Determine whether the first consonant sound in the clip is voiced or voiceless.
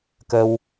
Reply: voiceless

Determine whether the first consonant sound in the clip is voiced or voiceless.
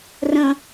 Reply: voiced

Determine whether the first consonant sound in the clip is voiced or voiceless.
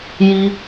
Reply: voiced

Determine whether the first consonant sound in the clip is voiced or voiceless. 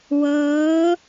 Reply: voiced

